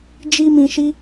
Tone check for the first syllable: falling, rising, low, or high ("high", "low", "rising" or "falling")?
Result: high